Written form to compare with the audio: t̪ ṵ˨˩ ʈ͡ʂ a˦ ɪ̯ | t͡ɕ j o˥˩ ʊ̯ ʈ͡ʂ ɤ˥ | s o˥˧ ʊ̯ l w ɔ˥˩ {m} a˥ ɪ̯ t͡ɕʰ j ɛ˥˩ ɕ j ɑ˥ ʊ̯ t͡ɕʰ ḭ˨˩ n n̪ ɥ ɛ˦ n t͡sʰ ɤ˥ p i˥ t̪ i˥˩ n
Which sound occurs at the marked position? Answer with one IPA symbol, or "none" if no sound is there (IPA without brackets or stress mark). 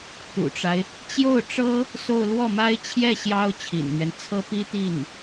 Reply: m